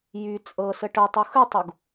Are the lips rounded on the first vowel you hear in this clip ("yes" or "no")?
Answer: yes